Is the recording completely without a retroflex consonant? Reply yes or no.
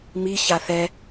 yes